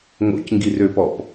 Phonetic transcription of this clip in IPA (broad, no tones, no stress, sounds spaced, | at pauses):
ŋ o̰ c ŋ ɡ i r ø p ɔ p